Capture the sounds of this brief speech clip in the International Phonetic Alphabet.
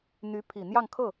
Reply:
n̪ y˧˥ pʰ i˨˩ n̪ j ɑ˥˧ ŋ kʰ ɤ˥˩

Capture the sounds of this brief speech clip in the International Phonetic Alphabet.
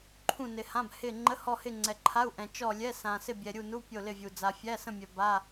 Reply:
ǃʰ ũ˦˨ n ɪ˨ h ã˧˥˧ b h ɪ˦˨ ŋ͡ǃ ə˧˥˧ h ɔ˦˨ h ɪ˦˨ ŋ͡ǀ ɛ˨ ǃʰ a˧˥˧ u̯ ʔ ɛ̃˨ t͡ʃ ɔ˦˨ lʲ ɛ˧˥˧ s ã˨ s ɪ˦˨ bʲ ɛ˨ ɾʲ u˦˨ n u˧˥˧ pʲ o˦˨ l ɪ˦˨ vʲ u˨ d͡z a˨ fʲ æ˧˥˧ s ə̃˦˨ mʲ œ˨ b a˧˥˧

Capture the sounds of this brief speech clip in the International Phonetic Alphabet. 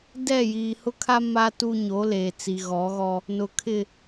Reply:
d ɛ˦˨ j iː˨ h ʊ˦ kʰ a˦ m a˦ t u˦ ɲ o˨˦ l eː˨ t͡s i˨ ɣ ɔ˨˦ ɣ ɔ˦ | n ʊ˨ kʰ ɪ˦˨

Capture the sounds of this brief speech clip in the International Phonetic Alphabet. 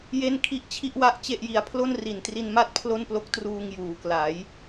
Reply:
j e˥˩ n kʰ i˦˥ ʔ t͡ɕʰ i˥˩ ʔ w a˥˩ ʔ t͡ɕ e˥˩ ʔ j i˧ a̯ pʰ l o˥˩ n r i˨˩ n t r i˧ n m a˥˩ t̚ pʰ l o˥˩ n p l o˦˥ k̚ t r uː˧ ŋ j uː˩˦ k l a˩˦ j

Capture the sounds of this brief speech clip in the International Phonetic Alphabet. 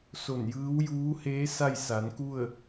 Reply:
s o˧˩ n j ɯː˧˥ w j uː˧˥ h eː˧˥ s a˥˨ j s a˩˧ n k u˥˨ ə̯

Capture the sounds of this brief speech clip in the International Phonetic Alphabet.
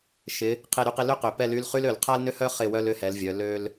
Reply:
ʃ ɪ˨˦ | qʰ e˥˨ ɾ y˥ q ɪ˥ l ø˥ q ø˨˩ p ɛ˥˨ l y˧˥˧ l χ y˥ l ø˨˩ l qʰ a˥ l n ʏ˥ h œ˥ χ ɪ˥˨ w œ˥ l ʏ˧˥˧ h ɛ˨˦ l vʲ œ˨˦ l ø˥ l

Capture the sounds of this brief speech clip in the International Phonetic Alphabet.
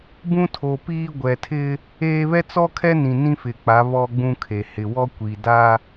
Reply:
b ũ˦ tʰ o˨ p iː˦ ɡʷ ɛ˨ tʰ ɪ˦ | eː˦ β ɛ˦ t͡s ɔ˦ kʰ ɛ˦ n ĩ˨ n ĩ˦ f ɪ˨ k͡p a˨˦ β ɔ˦ ɡ͡b ũ˦ kʰ e˨ h ɪ˨ w ɔ˦ kʷ i˨ d a˦

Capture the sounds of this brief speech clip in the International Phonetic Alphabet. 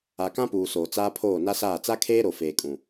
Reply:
a˨ k ã˦ p uː˨ s oː˨ t͡s aː˦ pʰ oː˦˨ n a˦ s aː˦˨ t͡s a˦ kʰ eː˦ ɾ o˨ f eː˨ kʼ ũ˨

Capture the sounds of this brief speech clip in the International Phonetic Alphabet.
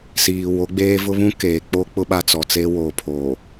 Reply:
s iː˨ w o˨˦ ɡ͡b eː˦ v ʊ˦ β ũ˦ k eː˨ k͡p o˦ k͡p ʊ˦ ɓ a˦ t͡s ɔ˨ t͡s e˦ w oː˨ pʰ oː˨

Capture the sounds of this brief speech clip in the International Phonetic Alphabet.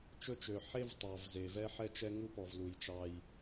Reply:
t͡ʃ ɵ˦ t͡ʃ ø˨ ħ e˦ v tˤ ɑ˨ v z e˨ v ɛ˦ ħ ɛ˦ t͡ʃ ɛ˦ ŋ u˦ p ɔ˨ v l u˨ j t͡ʃ ɑ˦ j

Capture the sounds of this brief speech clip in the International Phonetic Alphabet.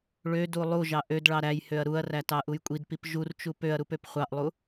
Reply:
ɭ ø d u lˠ u ʒ ɑ ʔ ø d ɭ ɑ ɾ æ j h ø ɐ̯ ɾ u ɐ̯ r æ t ɑ ʔ u j kʷʼ i d p i p ʒ u r t͡ʃ u p ø ɐ̯ ɾ u p ø p χʷ ɑ ʔ lˠ u

